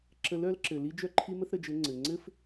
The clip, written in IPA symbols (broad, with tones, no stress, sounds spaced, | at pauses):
ǁ ə˧˥ l œ˧˥ l ǁ ɘ˩ l i˥ d͡ʒ œ˥ ǃʰ i˥ m ə˥ θ ɾ ə˩˧ d͡ʒ ɘ˧˥ ŋ͡ǀ ɘ˩ ŋ͡ǀ ɘ˥ f